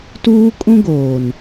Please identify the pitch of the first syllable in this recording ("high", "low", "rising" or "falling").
high